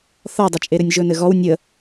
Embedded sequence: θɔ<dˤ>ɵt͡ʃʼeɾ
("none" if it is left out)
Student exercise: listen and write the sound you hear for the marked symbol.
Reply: dˤ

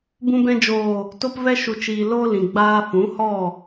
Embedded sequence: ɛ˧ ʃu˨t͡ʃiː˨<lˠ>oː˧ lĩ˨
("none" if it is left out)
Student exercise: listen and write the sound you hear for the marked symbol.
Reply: l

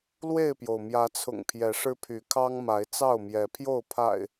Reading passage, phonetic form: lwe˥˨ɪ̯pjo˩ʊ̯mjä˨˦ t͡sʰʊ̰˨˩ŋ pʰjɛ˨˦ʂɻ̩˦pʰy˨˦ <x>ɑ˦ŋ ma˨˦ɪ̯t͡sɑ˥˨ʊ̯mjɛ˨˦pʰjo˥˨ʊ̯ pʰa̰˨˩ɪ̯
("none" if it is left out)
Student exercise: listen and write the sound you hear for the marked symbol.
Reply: kʰ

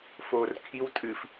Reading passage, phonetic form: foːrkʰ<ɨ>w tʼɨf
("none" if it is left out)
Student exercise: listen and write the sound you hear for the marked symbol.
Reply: i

